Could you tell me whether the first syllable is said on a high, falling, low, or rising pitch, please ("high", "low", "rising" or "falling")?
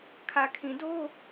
low